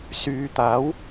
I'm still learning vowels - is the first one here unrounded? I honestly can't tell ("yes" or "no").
no